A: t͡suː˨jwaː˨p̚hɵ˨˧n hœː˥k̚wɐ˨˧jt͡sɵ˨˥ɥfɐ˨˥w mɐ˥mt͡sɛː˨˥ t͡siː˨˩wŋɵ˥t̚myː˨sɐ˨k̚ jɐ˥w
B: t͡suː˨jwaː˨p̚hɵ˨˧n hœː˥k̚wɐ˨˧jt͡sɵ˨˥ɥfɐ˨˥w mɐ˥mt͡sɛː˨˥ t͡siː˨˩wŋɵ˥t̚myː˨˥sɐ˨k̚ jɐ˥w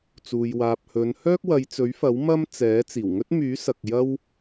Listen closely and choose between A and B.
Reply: B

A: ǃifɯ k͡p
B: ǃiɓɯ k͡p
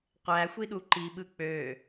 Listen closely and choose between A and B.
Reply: B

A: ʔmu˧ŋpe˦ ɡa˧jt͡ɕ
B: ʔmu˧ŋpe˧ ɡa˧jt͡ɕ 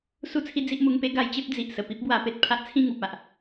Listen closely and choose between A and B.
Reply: A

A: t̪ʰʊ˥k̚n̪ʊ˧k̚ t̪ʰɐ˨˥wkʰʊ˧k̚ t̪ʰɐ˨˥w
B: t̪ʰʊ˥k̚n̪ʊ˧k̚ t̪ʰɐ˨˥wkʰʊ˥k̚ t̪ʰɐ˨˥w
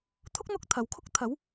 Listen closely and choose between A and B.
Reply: B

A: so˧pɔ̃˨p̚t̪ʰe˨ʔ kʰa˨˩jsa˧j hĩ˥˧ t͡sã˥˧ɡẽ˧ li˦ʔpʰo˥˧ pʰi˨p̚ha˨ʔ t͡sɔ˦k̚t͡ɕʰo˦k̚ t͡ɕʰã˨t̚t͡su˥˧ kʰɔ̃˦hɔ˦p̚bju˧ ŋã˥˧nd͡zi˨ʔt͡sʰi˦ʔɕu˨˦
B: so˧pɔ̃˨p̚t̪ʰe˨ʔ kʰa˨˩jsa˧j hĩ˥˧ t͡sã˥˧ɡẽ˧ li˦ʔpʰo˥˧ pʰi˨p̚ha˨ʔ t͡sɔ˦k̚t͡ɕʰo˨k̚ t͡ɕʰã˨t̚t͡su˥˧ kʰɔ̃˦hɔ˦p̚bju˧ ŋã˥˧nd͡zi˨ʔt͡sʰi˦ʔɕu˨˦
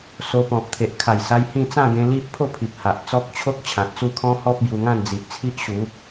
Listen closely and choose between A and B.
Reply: A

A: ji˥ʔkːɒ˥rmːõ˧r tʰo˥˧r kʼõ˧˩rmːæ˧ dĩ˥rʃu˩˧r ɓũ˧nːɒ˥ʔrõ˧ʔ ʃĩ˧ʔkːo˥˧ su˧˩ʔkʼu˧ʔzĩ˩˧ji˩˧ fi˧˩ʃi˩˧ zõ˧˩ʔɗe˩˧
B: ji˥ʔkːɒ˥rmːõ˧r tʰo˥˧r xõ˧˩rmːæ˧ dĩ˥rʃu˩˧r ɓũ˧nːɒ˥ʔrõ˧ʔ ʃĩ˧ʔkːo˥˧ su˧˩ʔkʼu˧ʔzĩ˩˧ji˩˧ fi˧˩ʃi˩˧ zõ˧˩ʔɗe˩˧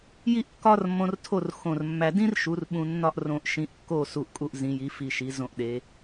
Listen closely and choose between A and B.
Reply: B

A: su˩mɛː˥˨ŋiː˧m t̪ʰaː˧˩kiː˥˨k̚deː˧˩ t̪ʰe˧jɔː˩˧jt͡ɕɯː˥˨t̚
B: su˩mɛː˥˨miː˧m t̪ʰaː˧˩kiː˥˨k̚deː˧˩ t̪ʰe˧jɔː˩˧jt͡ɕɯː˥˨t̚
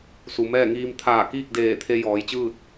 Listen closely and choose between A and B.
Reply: A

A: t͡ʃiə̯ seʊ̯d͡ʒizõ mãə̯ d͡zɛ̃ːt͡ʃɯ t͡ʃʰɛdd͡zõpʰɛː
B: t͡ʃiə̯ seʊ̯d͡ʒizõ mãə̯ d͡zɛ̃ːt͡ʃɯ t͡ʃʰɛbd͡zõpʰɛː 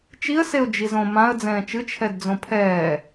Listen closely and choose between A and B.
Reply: A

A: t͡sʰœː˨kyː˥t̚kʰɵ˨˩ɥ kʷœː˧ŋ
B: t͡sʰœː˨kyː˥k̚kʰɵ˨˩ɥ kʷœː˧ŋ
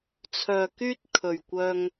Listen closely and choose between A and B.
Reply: A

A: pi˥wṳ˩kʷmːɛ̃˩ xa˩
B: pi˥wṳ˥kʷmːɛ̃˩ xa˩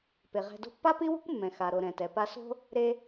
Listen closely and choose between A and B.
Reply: B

